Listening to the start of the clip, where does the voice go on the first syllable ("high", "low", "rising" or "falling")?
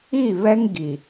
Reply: falling